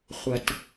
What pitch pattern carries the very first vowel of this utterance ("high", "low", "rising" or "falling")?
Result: low